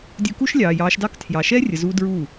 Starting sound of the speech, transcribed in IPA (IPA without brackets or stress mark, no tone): dʲ